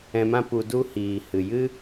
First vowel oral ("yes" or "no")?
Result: no